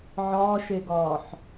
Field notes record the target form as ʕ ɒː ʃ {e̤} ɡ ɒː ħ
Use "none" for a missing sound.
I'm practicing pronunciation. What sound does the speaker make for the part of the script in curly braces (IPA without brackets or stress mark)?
e